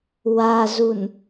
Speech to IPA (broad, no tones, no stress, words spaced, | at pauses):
wazun